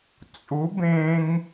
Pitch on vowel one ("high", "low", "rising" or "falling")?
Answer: rising